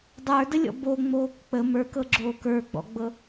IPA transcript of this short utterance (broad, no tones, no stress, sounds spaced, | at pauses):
dˤ ə˞ d ə lʲ ɔ̰ b o ŋ͡m oː k k͡p ə m ə˞ k ɤ ɡ͡ǁ oː k ə˞ ɡ͡b ɔ̰ ɡ͡b ɤ